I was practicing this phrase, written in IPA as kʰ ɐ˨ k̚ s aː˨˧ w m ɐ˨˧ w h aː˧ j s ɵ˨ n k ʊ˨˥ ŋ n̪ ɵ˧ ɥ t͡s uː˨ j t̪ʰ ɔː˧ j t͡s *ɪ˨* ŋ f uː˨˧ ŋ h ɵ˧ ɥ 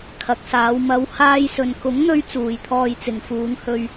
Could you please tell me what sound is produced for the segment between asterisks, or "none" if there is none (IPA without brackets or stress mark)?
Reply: ɪ˨